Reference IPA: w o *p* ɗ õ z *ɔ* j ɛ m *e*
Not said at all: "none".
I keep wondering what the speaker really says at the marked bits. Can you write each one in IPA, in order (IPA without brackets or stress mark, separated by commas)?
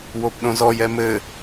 p, ɔ, ɘ